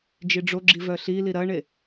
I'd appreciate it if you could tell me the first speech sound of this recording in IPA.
d͡ʒ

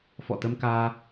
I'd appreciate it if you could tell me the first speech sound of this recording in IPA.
f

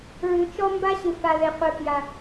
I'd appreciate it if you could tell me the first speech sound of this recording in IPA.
ɹ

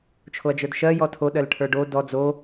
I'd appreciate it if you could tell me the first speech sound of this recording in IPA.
t͡ʃʰ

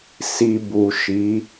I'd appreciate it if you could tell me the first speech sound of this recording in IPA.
s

